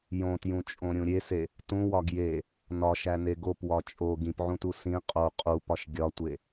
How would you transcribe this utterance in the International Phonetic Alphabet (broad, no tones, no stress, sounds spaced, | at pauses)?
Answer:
j õ t j ũ t͡ʃʼ õ ɾʲ ũ ɾʲ e s e | t ũ w ɒ ɡ j e | n ɒ ʃ æ n e ɡ o p w ɒ t͡ʃʼ o ɡ ĩ p ʕ ũ t u s ĩ qʼ o qʼ u p ɒ ʃ ɡʲ ɒ tʷ e